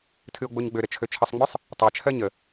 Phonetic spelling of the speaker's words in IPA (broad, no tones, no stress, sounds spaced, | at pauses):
tʰ ɨ o̯ ɡ͡b o ɲ ɡ͡b ø ɾ ə t͡ʃʰ ø t͡ʃʰ ə sˤ ŋ͡m ø sˤ | tˤ ɜ t͡ʃʰ ɜ ɲ ə